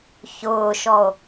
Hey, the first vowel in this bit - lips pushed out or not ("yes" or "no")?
yes